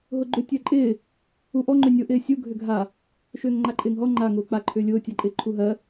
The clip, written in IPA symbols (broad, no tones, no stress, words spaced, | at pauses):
ɦʊɡ͡ǃʏ tʲɜǃʼɪː | uʔɔ ŋ͡ǃʏnʲʊ ʔɪːsʲu ɡʱʏɡʱa | ʃʏːŋŋ͡ǃaǃʼɪːŋɦɔ ŋ͡ǃa ŋʊːk͡pa ǃʰʏːlʲʊː tʲaǃʼɪːǃʰuɦɜ